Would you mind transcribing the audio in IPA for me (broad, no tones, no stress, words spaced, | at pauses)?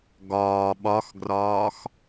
ɡɒː ɓɒxɡrɒːx